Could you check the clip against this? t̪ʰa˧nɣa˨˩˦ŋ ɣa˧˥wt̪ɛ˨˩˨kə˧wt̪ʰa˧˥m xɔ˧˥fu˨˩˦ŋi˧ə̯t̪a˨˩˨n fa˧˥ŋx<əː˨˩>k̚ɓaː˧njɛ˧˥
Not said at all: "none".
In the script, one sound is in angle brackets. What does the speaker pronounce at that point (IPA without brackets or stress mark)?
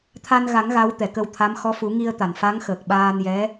əː˨˩